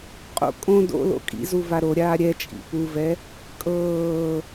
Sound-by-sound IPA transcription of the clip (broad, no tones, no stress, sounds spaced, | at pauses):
qʼ o̰ kʼ õ d o̰ l o̰ kʼ ḭ z u v a ɾ o ɾʲ aː ɾʲ ɛ t͡ʃʼ ḭ p u v ɛ | kʼ ɤː